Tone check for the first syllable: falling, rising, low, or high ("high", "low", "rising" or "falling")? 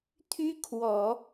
high